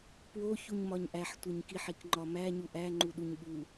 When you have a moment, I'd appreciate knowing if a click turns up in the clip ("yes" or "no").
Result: yes